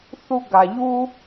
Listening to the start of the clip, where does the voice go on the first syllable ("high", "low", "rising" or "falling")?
high